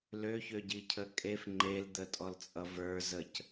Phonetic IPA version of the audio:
l ø ç ø ɟ i cʰ ə kʼ e f ŋ͡ǃ e l d̪ ə tʼ ɔ l t͡sʼ ʌ v ə˞ z ə c

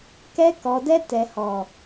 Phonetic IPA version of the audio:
k ɛ˧ k ɔ˨ d ɛ˧ t ɛ˨ h ɔ˨

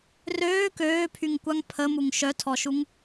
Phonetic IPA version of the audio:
r øː k øː pʰ y ŋ kʷ a ŋ pʰ ə m u ŋ ʃ œ tʰ ɔ ʃ u ŋ

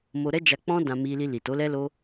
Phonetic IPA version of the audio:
m o˧ ɾ ɛ˦ d͡ʒ a˧ k͡p ɔ̃˦ d ã˧ m i˧ l i˧ l i˨ t o˨˦ l ɛ˦ l o˦

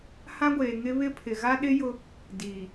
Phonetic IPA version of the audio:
h ã˦ ɡʷ eː˨ ŋ ɪ˦ β ɪ˦ pʰ ɪ˨ ɣ a˦ ɗ ɪ˦ j ʊ˦ | d iː˨

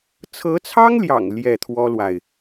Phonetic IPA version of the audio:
t͡sʰ ɤ˧˥ t͡sʰ ɑ˥ ŋ l j ɑ̰˨˩ ŋ l j ɛ˥˩ t̪ʰ w ɔ˥ l w a˨ ɪ̯

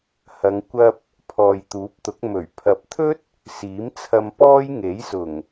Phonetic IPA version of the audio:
h ɐ˨˧ ŋ kʷ ɐ˧ p̚ | pʰ ɔː˨ j t̪ uː˨˥ p̚ t̪ ʊ˨˥ k̚ m ɵ˨˩ ɥ pʰ ɐ˨ p̚ t̪ʰ ɵ˥ t̚ | s iː˨˥ m t͡sʰ ɐ˧ m p ɔː˥ j ŋ e˨˥ j s ʊ˨˩ ŋ

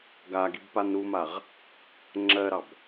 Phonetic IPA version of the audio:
ɡ a ɡ i b p a n ɾ u m a ʁ | ŋ͡ǁ ɜ ɾ ɑ b

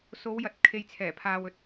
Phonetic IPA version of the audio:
s o˨˧ w j ɐ˨ t̚ kʰ e˨ j t͡sʰ ɛː˨˩ pʰ aː˨ w ɵ˨ t̚

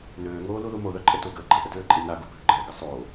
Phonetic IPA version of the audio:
n øː ŋ oː l u ð u m o ð œ ǃʼ ə t o ɡ əː ɡ͡ǃ ə ʔ ə d øː ǃʼ i n a ɡ u bʱ ø ɡ͡ǃ əː ɡ ə sˤ oː

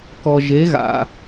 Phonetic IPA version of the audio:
k ɔ˨ ʒ e˨˦ ɣ a̰˨

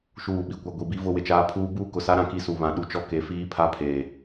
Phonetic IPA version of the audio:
ʃ uː˦˨ ɓ i˦˨ kʷ a˦ ɡʷ i˨ b i˦ v ʊ˦ w ɪ˨ t͡ʃ aː˦ pʰ uː˦ b uː˦ k ʊ˨ s a˦ ɾ ã˨ k i˦ s u˨ β ã˨ ɗ u˦ t͡ʃ ɔ˦ k e˨˦ f iː˦ pʰ a˦ pʰ eː˨

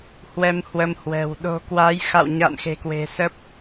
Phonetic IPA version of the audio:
h w ɛ˧ m h w ə˧ m h w ɛ̤˨˩ w ɗ o̤˨˩ k w a˨˦ j x a̰˧˨ w ɲ a̰˧˨ n x e̤˨˩ k w e̤˨˩ s ə˦˥ p̚

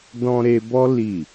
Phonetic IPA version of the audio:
d ɔ̃˧ ɾ e˧ b ɔ˦ l i˦˨

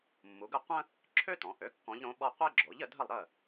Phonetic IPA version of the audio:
mː u˩˧ ɡ ə˥˩ qʷ ə̃˥ | ǁʰ ø˥ t ɔ̃˩˧ ʔ ø˩˥ kː ɔ̃˧˥ ʎ ɾ õ˧˥ ɓ ɔ˥ qʷ e˥ ɡ͡ǁ o˩˥ ʎ ə˩˧ dʱ ə˥˩ lˠ ɾ ə˥˩

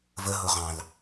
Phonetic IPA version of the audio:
v ə ɦ ʊ ʁ ɑ̃ l

